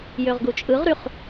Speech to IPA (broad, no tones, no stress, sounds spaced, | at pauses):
j ø ʁ ɡ u t͡ʃʼ ɯ ʁ ɾ y χ